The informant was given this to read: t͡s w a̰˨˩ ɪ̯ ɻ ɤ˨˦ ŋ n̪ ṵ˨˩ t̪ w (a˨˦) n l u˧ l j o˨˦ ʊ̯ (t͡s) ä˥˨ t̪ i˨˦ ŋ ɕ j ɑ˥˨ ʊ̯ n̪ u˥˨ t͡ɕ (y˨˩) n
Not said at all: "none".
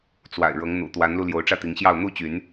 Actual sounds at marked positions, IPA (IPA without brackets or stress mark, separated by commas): a˨˦, ʈ͡ʂ, y˨˦